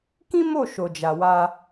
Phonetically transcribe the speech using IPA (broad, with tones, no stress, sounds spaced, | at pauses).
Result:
k ĩ˦ m o˦˨ ʃ o˨ d͡ʒ a˨ w a˧